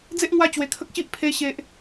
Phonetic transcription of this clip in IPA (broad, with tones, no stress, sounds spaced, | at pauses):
d͡z e˦ ʔ ŋ w a˦ t͡ɕ w e˧ kʰ ə˦ k̚ ɕ i˦ ʔ pʰ e˦ ɕ e˦ ʔ